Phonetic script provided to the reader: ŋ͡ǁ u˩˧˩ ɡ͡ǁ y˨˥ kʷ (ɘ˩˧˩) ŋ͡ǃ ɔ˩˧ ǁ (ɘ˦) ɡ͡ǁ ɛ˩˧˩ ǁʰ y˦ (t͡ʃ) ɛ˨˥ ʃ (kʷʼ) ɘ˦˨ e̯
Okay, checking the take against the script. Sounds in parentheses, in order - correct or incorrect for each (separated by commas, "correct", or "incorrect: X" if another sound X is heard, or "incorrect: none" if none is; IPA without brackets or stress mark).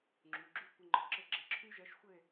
correct, incorrect: ɘ˧˩˧, incorrect: ʒ, incorrect: xʷ